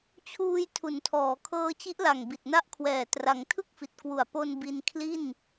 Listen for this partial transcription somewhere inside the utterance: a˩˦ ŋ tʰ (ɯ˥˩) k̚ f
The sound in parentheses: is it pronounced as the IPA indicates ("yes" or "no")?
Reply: yes